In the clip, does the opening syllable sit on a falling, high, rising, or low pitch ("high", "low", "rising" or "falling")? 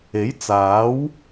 rising